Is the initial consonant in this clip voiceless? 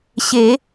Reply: yes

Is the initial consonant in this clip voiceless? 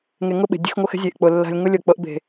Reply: no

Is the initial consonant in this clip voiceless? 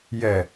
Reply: no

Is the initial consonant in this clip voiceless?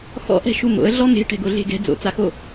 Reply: yes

